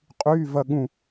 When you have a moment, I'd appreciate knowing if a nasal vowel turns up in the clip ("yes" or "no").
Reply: yes